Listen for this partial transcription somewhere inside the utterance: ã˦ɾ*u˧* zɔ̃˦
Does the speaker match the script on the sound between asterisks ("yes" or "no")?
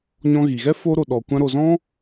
no